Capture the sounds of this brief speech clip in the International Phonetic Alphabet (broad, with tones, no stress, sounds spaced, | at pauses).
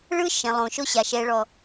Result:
ɭ ɯ˦ ʃ ɛ̃˨ lˠ õ˨ ʃ o˦ ɕ a˨ ʃ ɛ˨ ɭ ɔ˨